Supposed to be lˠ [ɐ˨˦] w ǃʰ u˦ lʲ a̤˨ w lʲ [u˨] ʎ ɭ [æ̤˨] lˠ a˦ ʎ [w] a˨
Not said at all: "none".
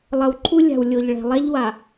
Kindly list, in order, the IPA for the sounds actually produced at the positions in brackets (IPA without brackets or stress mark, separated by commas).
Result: ɐ˨, o˨, ɛ̤˨, w